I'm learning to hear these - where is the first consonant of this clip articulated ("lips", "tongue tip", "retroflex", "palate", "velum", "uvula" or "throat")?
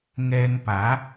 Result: velum